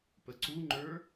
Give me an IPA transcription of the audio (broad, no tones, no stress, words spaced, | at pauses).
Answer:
pəǀuŋ͡ǃə˞